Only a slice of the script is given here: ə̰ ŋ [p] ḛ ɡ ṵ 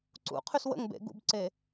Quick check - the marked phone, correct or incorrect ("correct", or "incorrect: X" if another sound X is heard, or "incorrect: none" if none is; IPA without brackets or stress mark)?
incorrect: b